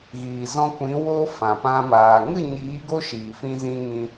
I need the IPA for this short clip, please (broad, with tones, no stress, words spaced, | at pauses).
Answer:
ɣiː˨zɔ̃˧kʷĩ˨˦ wo˧ fã˨pã˧ maː˨ŋɨ˦˨ ɲiː˨˦ɡo˦ ʃiː˨fĩ˧zĩ˧ ŋĩ˧